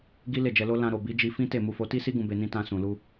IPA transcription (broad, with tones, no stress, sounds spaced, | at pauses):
ɡ i˦ l e˦˨ d͡ʒ ɛ˧ l o˦ l ã˧ ɾ o˨ b i˨˦ d͡ʒ i˧ f ĩ˦ t e˦˨ m u˧ f o˧ t i˦ s i˦ ɡ ũ˧ b e˧ n ĩ˦ t ã˧ s ũ˨ l u˧